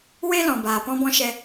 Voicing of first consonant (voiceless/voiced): voiced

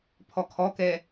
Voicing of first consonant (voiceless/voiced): voiceless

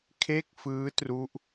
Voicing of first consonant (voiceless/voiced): voiceless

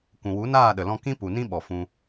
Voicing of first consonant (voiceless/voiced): voiceless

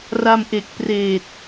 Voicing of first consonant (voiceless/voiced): voiced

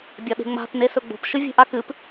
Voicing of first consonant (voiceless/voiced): voiced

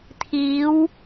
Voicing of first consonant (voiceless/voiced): voiceless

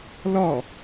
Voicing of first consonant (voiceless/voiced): voiced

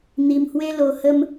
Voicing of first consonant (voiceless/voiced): voiced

